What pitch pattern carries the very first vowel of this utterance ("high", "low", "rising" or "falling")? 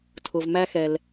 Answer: low